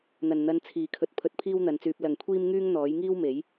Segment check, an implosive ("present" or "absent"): absent